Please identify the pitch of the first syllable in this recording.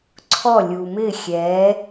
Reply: falling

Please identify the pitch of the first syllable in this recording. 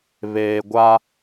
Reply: low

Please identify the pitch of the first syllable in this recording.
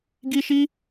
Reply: high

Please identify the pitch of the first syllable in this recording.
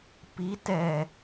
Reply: rising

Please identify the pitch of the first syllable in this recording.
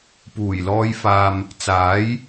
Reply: low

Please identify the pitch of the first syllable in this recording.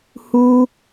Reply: high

